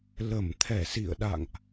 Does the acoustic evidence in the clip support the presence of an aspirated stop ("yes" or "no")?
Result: yes